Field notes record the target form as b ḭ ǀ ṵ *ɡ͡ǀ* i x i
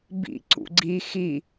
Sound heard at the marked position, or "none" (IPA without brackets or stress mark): ɡ͡ǀ